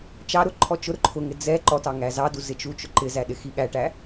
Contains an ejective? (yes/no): no